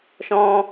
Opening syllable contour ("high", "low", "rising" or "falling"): high